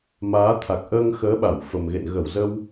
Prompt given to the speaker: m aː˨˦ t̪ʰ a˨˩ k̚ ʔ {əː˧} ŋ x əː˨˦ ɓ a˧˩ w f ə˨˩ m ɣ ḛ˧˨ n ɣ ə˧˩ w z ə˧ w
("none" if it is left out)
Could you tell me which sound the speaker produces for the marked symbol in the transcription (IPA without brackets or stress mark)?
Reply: əː˧